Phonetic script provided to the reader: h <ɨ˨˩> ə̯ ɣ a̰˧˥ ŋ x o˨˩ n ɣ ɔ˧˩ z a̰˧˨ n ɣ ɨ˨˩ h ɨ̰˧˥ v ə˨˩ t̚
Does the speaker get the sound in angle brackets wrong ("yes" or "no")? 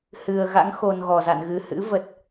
no